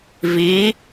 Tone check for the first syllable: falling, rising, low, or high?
rising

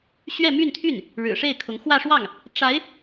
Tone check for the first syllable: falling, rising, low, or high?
falling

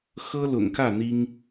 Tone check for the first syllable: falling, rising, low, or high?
high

